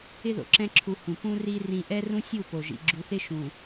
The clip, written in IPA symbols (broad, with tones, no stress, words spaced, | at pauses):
ɪ˦ðo̰˨ǁɛ̃˦ǁʰu˨ hũ˨ pũ˦ri˦ rĩ˦ ʔɛ˦rũ˦sʲu˦˨ po˨ʒḭ˨ ɡ͡ǁu˨θɪ˦ʃũ˨